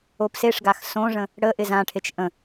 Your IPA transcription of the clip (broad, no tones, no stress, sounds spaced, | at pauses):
o p s e ʂ ɡ a x s õ ʐ ə̃ | ɽ ə ʔ ɪ z ã ʈʰ e t͡ʃ ʔ ə̃